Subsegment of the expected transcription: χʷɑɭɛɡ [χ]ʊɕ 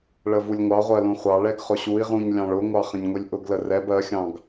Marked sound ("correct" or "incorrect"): correct